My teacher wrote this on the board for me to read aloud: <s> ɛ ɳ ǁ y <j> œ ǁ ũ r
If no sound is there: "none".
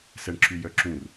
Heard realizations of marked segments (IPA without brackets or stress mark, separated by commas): s, j